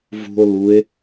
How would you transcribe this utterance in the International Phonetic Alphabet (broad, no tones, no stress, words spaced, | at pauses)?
vṳo̯ lue̯